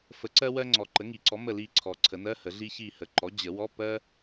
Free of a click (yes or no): no